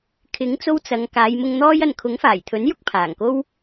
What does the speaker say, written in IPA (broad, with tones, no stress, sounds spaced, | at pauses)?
kʰ ɪ˨˥ ŋ t͡s o˧ w t͡s ɐ˨˧ ŋ k aː˨˧ j m ʊ˧ ŋ n̪ ɔː˥ j ɐ˨ n kʰ ʊ˨˥ ŋ f aː˨˩ j t̪ʰ ɵ˨˥ n j ʊ˥ k̚ pʰ aː˨˩ ŋ k o˥ w